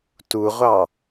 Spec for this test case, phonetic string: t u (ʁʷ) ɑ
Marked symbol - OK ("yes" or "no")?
yes